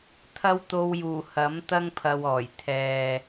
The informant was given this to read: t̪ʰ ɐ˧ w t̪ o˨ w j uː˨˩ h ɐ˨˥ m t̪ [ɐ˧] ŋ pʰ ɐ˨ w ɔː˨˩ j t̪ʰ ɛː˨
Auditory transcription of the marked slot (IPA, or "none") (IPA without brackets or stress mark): ɐ˧